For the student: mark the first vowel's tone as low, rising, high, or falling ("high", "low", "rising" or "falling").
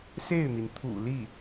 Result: falling